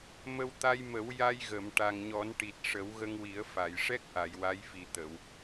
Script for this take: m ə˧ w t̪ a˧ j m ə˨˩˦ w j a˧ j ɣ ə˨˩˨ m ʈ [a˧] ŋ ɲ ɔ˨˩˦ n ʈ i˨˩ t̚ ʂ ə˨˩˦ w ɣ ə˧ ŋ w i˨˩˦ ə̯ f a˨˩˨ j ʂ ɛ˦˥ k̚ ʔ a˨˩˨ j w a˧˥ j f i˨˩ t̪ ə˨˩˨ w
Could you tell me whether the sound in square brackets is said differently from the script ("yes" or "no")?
yes